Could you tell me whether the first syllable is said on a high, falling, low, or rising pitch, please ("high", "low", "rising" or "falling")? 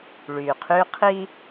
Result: low